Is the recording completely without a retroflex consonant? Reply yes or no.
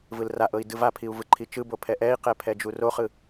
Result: yes